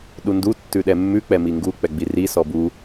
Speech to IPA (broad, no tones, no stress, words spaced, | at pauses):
ɗundu tːʉɗɛmːʉ k͡pɛmiŋɡu k͡pɛɡ͡biri sɔbu